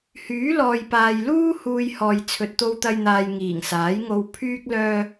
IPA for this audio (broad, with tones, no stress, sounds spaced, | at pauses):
h yː˨˥ l ɔː˨ j p aː˨ j l uː˥ h uː˧ j h ɔː˨ j t͡sʰ ɵ˨ t̚ t̪ o˧ w t̪ ɐ˧ j n̪ aː˨ j ŋ iː˨˩ ŋ s aː˨˥ j ŋ o˧ w pʰ yː˥ k̚ l œː˧